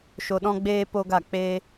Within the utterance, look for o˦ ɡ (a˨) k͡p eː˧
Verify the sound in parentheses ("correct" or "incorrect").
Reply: incorrect